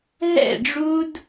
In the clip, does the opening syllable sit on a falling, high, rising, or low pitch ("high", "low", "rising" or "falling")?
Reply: falling